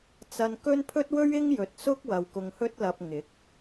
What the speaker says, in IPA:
t͡sɐ˧nkɵ˥n pʰɵ˥t̚wɵ˥ɥ ɪ˥ŋ jɵ˨t̚ sʊ˥k̚wɐ˨w kʊ˧ŋ hɵ˥t̚lɐ˧p̚ ŋɪ˨˥k̚

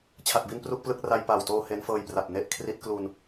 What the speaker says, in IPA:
t͡ɕʰa˨˩t̚bi˧n pru˥˩k̚plɯ˥˩k̚ ra˧jpaː˨˩wtoː˧ he˦˥nfɤː˧jpra˨˩p̚ ne˥˩ʔ kʰri˦˥t̚ klu˧n

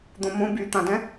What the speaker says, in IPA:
d̪õmõ byt̪ãdɛ̃

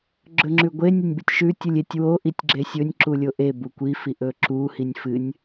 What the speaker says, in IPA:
ɡ͡ǁɵŋ͡ǁʉɡʷe nʲɵnʲbɨtʲʃʉ tʲɨlʲetʲ wo ʔitʲɡ͡ǁesʲɵnʲ ǁulʲoʔe bukʷi fiʔɵǁu hinʲfɨnʲ

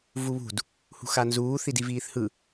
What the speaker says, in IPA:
vuβṳd | hṳxanzuː θidiviːθhɯ

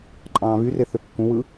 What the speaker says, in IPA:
ǃʼɑ̃ːβyre θøkːũwɯ

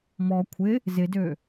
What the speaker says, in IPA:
mɔ kʷʰɪ | zɪdø

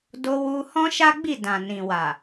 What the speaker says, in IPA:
do˧wu˧ hɔ̃˦ʃa˦ɡ͡bi˦˨ dã˨nĩ˨wa˨

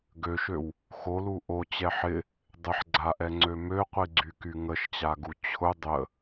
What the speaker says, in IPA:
ɡøʃøw | xolu ʔot͡ɕɛ ħɪ | dˤɪħɡ͡ǀaʔɛŋ͡ǀø møqʷiɡ͡ǀyky ŋəʃt͡ɕaɡu t͡ɕʰʊ dˤə

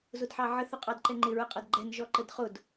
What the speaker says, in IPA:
zʊdħɑʕə θʊqʼɑdǃɛŋ͡ǃɪ ɹəqʼʌdɡ͡ǃɛn ʒɔǃədχʊd

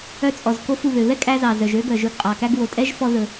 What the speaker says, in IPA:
œ˧t͡sʼɔ˩z ko˧fu˩ βø˩βɛ˥kʼæ˧zɑ˩ zœ˩ʒø˥ ɡœ˩ʒɵ˧ɡqʼɑ˩kæ˥ɡ wo˩tʼɛ˥ʒfɔ˧ ðɵ˩

